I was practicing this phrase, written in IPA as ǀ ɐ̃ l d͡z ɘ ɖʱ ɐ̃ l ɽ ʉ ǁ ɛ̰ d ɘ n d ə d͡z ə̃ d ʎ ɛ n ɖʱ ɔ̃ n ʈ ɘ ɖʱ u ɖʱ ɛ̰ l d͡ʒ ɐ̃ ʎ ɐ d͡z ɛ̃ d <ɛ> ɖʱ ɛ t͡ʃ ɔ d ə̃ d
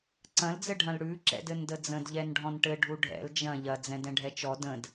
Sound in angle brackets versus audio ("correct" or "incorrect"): incorrect